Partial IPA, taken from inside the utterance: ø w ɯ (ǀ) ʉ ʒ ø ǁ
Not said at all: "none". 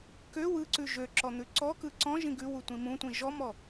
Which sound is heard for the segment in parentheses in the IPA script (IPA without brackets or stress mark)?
ǀ